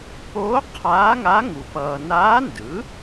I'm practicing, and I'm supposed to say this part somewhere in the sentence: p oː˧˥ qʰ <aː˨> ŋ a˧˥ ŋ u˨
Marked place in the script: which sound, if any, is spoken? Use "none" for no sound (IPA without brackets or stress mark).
aː˧˥